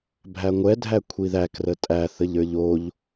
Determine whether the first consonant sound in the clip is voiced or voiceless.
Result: voiced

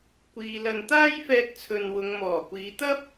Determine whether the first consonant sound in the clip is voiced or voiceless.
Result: voiceless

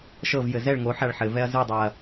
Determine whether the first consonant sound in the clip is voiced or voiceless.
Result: voiceless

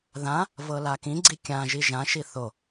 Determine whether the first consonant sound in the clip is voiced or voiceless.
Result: voiced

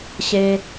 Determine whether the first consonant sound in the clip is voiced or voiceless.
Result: voiceless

